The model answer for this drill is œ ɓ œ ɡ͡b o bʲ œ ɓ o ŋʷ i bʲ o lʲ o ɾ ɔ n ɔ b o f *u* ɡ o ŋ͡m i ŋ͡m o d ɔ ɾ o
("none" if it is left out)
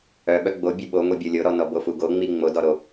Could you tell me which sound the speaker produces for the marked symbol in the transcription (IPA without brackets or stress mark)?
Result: u